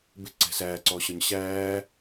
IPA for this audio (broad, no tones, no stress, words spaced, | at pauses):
bɪǀɛ̤ sæːǀɔːɕɒɲ ɕæː